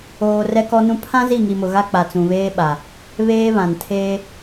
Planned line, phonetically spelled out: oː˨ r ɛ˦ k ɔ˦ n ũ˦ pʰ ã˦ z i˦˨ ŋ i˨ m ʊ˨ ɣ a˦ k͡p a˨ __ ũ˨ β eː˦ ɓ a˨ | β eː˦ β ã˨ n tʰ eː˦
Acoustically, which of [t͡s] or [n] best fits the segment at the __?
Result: t͡s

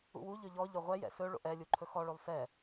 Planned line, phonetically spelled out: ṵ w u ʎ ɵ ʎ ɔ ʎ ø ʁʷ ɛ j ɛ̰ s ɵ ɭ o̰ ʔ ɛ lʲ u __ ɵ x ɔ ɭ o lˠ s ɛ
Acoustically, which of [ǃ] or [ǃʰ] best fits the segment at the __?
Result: ǃʰ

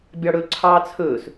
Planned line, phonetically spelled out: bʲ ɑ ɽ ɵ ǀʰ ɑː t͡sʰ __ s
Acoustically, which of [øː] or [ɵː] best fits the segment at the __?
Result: ɵː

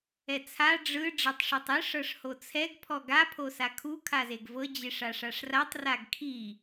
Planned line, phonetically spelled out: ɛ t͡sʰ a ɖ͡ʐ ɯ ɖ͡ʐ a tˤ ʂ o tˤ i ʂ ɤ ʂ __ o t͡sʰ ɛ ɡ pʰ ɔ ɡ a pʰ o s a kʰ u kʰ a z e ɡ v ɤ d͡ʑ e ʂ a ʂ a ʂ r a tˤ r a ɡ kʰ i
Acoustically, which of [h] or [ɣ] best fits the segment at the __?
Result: h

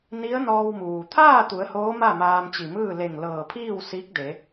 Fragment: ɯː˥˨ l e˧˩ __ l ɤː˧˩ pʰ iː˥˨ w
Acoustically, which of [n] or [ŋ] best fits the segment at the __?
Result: ŋ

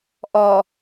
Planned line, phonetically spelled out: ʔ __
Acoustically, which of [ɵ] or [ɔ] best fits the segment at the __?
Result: ɔ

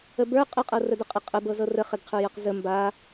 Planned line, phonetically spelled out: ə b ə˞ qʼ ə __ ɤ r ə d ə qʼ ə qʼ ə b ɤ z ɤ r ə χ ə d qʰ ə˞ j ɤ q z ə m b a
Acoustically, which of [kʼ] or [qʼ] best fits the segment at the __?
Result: qʼ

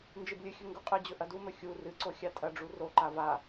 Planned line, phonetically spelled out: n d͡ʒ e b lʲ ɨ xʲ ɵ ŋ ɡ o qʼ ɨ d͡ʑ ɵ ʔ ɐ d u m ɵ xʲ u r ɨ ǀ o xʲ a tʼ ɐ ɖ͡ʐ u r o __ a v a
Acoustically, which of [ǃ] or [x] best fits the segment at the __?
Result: ǃ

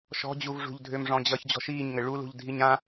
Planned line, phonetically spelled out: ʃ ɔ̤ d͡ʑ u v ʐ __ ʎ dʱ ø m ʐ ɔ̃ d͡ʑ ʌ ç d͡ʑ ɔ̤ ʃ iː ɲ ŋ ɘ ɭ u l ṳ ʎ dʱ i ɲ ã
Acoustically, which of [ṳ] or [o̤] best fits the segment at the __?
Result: ṳ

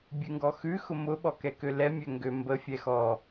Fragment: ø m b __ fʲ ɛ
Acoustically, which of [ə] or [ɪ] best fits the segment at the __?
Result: ə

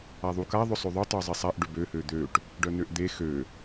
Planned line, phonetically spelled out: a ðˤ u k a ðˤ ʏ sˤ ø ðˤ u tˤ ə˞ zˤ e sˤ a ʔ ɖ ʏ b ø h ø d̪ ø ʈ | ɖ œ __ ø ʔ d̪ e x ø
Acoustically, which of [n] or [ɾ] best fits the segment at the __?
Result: n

